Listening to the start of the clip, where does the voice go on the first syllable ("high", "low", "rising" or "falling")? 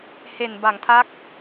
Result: low